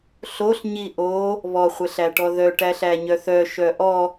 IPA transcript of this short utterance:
ɬ o ɬ ɲ i ʔ o | β ɔ χʷ ɛ ɬ æ ʈ ɔ ð œ ʈ æ ɬ æ ɲ œ θ œ ʃ œ ʔ ɔ

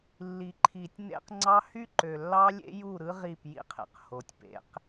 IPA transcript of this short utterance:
lː i˨ ǃʰ i˨ tʲ n ḛ˦ q ŋ͡ǀ ɑ˦ h y˦ ǃ ø˨ lː ɑ˦ lʲ ḛ˦ j u˦˨ ɾ ɯ˦ ʁ i˦˨ p j ḭ˦ qʰ ḛ˨ q h o˨ tʲ p ḛ˨˦ q

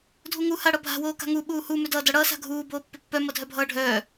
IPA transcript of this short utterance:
dʱ u ŋ u h a ɽ ʌ bʱ a̤ w oː k a̤ ŋ u ɓ uː h u m ʏ d ʌː d ʌ ɽ ʌː s a̤ ɡʱ uː b oː pː ʏ pː œ m ʌ dʱ œ bʱ ʌː ɖʱ œː

